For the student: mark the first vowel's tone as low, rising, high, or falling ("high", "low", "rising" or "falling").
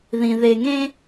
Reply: low